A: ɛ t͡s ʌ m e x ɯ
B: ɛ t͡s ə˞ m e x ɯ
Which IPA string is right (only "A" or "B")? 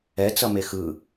A